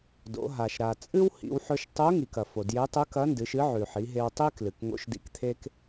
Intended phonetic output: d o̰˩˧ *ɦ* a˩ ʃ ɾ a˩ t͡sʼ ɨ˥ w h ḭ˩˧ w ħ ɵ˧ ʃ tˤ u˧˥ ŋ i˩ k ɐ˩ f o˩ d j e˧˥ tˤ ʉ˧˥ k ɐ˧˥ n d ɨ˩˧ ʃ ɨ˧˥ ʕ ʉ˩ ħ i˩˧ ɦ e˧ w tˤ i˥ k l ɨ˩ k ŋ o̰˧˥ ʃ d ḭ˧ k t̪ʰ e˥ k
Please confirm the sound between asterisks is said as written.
yes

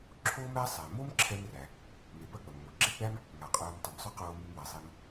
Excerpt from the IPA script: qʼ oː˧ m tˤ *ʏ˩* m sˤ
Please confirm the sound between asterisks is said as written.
yes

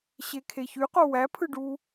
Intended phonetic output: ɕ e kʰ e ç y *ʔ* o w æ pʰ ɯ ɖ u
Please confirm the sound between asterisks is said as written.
no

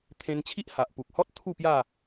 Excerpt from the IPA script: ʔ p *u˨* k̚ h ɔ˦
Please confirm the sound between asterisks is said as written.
yes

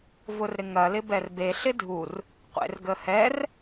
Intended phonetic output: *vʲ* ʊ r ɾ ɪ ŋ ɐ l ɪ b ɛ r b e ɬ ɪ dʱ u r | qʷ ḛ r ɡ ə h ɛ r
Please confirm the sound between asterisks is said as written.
no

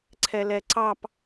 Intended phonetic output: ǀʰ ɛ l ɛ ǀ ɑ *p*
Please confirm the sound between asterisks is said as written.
yes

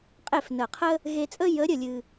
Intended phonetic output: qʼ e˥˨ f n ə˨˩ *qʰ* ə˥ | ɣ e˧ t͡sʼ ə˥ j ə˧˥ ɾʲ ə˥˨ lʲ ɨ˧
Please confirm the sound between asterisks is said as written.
yes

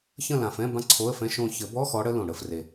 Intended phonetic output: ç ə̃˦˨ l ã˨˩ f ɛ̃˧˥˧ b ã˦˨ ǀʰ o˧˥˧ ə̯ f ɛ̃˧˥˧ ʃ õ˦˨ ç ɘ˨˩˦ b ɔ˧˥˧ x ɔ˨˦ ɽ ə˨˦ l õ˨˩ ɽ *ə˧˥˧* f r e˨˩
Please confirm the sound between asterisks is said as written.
yes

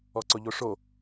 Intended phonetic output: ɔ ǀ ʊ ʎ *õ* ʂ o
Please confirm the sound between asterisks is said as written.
no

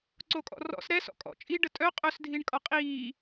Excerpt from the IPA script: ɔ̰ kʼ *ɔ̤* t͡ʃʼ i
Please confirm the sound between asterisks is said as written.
no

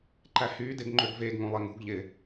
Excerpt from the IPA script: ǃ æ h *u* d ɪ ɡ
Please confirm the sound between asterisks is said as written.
no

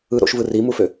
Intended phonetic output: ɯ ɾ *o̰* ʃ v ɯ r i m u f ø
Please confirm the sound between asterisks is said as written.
yes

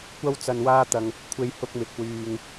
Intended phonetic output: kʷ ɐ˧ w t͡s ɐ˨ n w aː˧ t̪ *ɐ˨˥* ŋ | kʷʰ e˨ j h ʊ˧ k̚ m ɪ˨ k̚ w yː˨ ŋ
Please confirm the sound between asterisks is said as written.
no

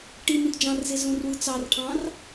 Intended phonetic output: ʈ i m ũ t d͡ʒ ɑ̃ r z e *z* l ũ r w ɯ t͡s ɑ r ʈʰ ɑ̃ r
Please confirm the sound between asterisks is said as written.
yes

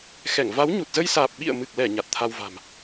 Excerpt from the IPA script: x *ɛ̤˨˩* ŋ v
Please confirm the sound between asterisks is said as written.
no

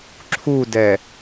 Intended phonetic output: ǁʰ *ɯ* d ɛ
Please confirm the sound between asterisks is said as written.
no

